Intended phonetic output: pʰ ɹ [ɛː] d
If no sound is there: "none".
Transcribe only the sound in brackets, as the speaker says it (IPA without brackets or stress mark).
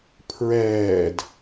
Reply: ɛː